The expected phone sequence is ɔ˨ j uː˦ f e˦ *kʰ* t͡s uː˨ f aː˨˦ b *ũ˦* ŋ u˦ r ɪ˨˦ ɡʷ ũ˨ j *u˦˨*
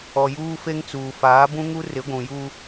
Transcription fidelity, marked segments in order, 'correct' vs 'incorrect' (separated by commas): incorrect, correct, incorrect